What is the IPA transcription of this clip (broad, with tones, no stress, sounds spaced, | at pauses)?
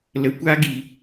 l ə˨ kʷ a˦ ɡ i˨